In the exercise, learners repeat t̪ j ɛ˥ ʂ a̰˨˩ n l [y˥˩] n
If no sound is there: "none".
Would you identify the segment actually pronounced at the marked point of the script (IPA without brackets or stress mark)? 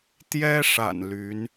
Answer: y˧˥